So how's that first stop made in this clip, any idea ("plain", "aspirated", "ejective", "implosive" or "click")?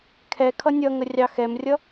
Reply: aspirated